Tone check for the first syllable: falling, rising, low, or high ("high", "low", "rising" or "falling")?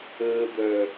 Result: low